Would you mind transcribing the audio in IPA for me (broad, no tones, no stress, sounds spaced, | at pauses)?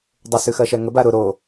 dˤ ʊ s ʉ x ɜ ʃ ɛ ŋ ə b a ɾ ʊ ɾ o